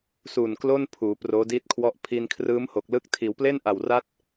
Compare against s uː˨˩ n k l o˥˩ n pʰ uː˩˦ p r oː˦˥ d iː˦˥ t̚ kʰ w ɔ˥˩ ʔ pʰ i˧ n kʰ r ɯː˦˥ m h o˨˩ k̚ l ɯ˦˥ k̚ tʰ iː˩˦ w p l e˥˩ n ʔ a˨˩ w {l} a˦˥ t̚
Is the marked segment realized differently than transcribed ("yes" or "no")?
yes